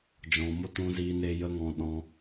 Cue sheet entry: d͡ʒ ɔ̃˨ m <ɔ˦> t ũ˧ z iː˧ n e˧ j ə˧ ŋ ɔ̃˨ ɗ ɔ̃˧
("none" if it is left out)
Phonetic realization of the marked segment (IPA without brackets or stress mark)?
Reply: o˦